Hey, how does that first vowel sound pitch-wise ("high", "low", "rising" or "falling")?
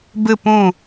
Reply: falling